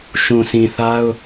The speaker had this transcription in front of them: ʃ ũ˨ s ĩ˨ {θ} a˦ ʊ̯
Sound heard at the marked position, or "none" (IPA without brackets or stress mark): θ